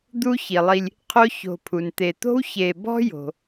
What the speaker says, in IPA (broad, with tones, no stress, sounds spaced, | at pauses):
d̪ u˦ ç i˩ lˠ i˨ lʲ | qʰ o˦ ç o̤˨ pʰ u˩ n t̪ e˩ t̪ o̤˥ w ç e˨ b ɔ̤˥ j o̤˩